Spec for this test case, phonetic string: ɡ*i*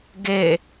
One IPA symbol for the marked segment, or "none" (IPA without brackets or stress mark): e